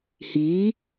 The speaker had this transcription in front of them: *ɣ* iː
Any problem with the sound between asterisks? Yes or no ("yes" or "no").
yes